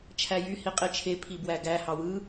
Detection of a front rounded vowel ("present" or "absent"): present